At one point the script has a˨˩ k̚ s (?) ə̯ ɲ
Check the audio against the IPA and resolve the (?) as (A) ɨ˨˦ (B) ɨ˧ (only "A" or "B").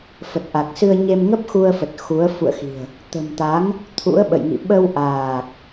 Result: B